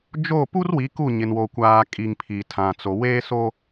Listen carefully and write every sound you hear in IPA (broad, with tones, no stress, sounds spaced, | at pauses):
d͡ʒ o˦˨ p u˦ r w i˨˦ k u˦˨ ɲ ɪ˨ n w o˨ kʷ aː˨ kʼ i˨ ŋ pʰ i˨ tʰ ã˨ t͡s o˨ w eː˦ s o˦